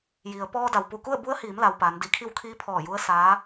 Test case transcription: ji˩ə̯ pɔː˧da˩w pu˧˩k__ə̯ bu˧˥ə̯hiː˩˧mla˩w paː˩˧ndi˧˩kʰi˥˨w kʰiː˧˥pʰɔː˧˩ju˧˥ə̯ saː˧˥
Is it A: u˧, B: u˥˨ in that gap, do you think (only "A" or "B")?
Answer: B